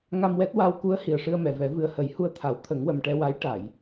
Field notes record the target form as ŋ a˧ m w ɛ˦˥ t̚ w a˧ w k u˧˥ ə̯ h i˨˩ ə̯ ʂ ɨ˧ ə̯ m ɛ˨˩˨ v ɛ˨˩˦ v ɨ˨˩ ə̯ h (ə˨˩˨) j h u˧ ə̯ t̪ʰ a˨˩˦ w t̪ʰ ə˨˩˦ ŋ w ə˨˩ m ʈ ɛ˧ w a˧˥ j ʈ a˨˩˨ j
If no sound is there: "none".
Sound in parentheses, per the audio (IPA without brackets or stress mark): ə˨˩˦